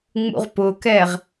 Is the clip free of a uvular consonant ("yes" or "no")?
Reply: no